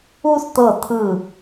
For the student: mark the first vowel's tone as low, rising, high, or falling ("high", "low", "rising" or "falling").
high